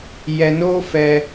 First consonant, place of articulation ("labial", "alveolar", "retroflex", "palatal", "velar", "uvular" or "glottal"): palatal